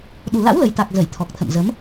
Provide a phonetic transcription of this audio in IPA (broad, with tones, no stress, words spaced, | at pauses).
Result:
ɗu˨˩la̰˧˥wlə˨˩jt̪a˨˩k̚ zə˧˩jt̪ʰɔ˨˩k̚t̪ʰə̰˧˨m zə˨˦m